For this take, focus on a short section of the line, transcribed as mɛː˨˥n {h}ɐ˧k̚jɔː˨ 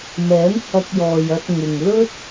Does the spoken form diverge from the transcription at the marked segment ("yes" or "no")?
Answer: no